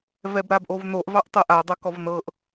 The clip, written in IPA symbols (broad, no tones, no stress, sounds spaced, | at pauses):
v ɛ b ɾ a b ʔ o v n o ʔ v ɑ ʔ tˤ ɤ ʔ a dˤ ʌ k ɔ v n ɤ ʔ